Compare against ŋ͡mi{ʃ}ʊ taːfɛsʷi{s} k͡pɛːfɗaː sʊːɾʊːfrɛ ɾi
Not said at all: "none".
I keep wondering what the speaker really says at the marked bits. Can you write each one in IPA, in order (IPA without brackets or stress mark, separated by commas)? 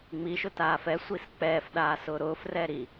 ʃ, s